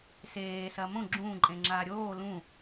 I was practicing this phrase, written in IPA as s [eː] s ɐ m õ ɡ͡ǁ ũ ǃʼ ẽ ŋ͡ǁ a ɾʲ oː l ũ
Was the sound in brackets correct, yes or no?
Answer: yes